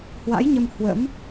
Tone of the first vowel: rising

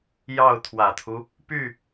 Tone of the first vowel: falling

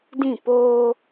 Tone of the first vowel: falling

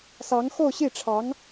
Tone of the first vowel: rising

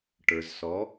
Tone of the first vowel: low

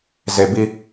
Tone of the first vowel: low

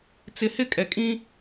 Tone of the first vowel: low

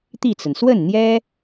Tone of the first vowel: falling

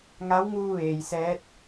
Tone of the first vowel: rising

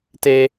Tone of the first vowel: high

